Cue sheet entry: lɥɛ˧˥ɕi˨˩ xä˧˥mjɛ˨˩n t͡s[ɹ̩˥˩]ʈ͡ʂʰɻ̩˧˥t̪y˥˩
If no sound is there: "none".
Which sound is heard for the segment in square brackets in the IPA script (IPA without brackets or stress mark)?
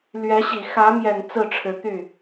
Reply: ɹ̩˥˩